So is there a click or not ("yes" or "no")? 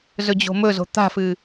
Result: no